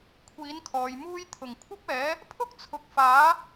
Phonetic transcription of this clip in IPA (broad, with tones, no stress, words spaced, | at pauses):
kʷʰiː˨˥nkʰɔː˨jmuː˥j t̪ʰʊ˨˩ŋkʷʰɐ˥p̚ɛː˨˥ | pʰʊ˥k̚t͡sʰʊ˨k̚ faː˨˥